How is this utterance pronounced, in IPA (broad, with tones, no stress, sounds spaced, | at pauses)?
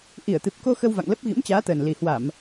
ʔ i˧˩ ə̯ t̪ ɨ˨˩ p̚ k o˧ x ə˧ w v a̰˧˨ ŋ l ə˦˥ p̚ ɣ ḭ˧˥ m t͡ɕ aː˨˦ t̪ əː˨˩ n l i˨˩ h w a˧˩˨ m